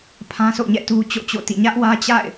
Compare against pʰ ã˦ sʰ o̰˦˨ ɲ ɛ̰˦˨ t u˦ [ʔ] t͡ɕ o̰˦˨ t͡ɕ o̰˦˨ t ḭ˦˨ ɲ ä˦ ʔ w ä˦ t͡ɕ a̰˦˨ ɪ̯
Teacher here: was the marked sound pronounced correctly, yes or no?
no